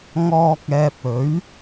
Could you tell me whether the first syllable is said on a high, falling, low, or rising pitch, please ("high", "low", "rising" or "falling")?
low